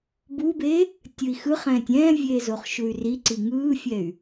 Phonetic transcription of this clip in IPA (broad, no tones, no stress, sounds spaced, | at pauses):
b u b e | tʲ ɯ i̯ x ɯ χ ɛ̃ː tʲ ɛ̃ː vʲ eː z o χ ʃ u y̯ r i ǀ i ŋ ɯː fʲ ɛ y̯